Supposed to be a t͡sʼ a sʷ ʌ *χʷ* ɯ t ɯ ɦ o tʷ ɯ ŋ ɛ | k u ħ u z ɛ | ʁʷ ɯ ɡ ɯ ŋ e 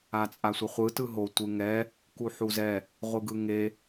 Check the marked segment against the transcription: correct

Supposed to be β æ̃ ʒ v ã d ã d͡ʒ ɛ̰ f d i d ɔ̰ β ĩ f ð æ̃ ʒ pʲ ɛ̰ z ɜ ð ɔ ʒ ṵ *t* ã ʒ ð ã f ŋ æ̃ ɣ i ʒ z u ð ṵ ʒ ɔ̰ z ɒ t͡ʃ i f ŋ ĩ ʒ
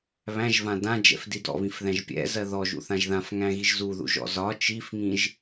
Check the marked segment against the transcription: incorrect: θ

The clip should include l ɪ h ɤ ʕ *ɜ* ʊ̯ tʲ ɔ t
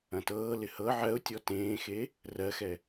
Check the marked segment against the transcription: correct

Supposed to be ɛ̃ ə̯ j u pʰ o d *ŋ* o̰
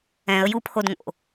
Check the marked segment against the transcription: correct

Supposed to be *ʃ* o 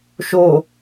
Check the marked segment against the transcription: correct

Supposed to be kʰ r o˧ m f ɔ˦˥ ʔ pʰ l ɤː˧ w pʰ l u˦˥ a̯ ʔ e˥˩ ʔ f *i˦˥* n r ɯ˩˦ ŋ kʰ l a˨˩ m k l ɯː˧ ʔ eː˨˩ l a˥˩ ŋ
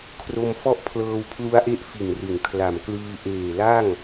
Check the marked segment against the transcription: incorrect: i˨˩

